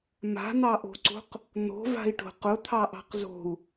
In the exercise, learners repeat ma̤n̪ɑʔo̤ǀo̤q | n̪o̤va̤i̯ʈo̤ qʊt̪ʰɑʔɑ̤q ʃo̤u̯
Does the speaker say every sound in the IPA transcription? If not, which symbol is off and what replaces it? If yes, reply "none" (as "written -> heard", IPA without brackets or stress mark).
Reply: ʃ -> z